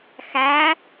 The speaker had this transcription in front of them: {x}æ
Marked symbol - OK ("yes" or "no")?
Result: yes